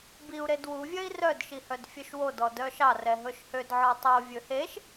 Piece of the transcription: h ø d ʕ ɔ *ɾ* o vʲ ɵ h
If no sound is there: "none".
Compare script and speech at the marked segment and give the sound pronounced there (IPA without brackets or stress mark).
tˤ